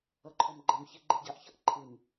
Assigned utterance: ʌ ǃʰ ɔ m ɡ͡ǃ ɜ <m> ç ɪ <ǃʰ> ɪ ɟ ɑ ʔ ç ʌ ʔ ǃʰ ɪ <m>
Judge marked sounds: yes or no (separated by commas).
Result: yes, no, yes